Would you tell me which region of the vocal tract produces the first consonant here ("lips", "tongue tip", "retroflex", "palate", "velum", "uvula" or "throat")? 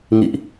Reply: velum